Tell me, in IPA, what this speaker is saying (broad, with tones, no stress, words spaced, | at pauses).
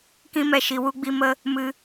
kĩ˦mɛ˧ ʃi˨wu˧ɡ͡bi˧mə˧ | mɨ˧